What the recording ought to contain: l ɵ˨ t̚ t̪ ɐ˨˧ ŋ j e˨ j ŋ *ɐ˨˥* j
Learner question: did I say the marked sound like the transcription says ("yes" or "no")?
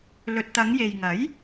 yes